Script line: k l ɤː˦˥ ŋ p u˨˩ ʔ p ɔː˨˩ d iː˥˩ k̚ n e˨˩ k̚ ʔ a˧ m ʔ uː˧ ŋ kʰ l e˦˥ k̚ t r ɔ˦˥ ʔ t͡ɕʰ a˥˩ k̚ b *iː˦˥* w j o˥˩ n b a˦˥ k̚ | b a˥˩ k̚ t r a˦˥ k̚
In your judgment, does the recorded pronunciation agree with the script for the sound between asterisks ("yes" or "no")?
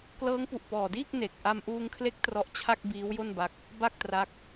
yes